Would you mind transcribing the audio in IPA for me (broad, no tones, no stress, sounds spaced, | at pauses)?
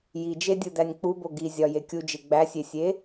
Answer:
j i d͡ʒ e dʲ u d æ nʲ k͡p u b o ɡ i zʲ ɒ j e kʲ u d͡ʒ e ɡ͡b æ sʲ e sʲ e